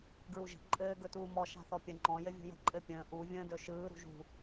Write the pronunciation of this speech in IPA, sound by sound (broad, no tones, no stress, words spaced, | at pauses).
ɡɹuʒə̤ ǃʼɘː ɡɵtuːmɔ ʃa̤θɔpʲə ŋ͡ǃɔ̃ jɘvʲṳjə̤ ǃʼɘpʲə̃ː ʔu vʲə̃ːdɵʃɯː ɾṳʒṳ